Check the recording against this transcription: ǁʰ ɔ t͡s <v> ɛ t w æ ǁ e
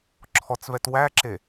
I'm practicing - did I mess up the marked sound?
no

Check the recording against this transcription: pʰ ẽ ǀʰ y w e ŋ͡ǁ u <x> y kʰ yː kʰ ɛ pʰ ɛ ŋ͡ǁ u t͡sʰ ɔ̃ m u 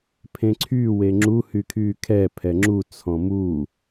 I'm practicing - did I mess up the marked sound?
yes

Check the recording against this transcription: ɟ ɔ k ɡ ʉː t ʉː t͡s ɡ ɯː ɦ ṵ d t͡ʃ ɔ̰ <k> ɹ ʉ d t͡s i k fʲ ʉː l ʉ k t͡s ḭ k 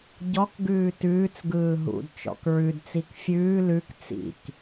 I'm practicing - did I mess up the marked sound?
no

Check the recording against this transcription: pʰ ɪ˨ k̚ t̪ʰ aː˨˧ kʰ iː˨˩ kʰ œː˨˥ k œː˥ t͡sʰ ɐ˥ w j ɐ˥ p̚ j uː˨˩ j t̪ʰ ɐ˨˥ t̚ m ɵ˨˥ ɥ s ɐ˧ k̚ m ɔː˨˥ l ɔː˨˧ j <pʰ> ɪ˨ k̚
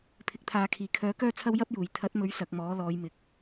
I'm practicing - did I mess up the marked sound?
yes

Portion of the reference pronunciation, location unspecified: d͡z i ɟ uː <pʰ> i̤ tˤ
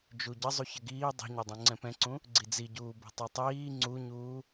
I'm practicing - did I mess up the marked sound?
yes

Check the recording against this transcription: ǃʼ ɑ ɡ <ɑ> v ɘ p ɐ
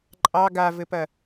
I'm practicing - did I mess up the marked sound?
yes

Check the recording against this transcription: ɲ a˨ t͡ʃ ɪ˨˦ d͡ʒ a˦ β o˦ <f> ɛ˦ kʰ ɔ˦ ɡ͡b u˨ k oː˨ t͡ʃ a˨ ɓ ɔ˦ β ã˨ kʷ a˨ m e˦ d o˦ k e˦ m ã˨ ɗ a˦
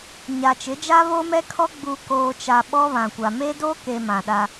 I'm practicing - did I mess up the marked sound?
yes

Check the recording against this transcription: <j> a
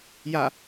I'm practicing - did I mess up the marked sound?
no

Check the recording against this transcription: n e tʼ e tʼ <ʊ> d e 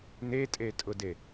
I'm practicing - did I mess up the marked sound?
no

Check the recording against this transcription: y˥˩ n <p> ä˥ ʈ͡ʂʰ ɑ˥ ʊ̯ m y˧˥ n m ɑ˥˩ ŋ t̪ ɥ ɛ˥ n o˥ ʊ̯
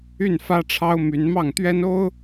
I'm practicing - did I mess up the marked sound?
yes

